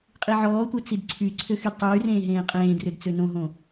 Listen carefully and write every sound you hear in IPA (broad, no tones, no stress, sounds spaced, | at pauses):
qʼ i ʕ ɔː tʷ e t͡s i d ǀʰ y ǀʰ ø x y d tˤ yː r ẽː ɦ ẽː qʼ ẽː d r ø d t͡s ø n õ ɦ õ